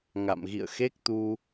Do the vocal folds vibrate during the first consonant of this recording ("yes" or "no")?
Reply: yes